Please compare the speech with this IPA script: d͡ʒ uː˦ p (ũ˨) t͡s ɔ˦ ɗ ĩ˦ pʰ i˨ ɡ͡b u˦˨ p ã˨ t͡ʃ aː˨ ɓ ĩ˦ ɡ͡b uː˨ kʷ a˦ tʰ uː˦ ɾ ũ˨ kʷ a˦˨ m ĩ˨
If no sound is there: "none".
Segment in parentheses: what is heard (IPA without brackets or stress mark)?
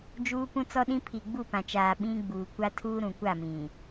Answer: ũ˦